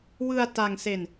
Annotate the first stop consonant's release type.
plain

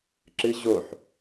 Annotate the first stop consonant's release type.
click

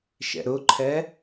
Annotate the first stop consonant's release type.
click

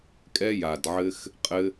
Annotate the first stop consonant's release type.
ejective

